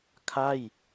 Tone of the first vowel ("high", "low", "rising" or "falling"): falling